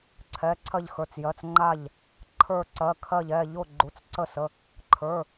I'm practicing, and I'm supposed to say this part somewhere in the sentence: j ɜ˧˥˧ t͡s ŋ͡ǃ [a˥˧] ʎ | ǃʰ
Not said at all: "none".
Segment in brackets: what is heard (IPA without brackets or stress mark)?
a˥˧